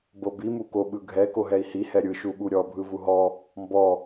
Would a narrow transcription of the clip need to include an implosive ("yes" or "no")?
yes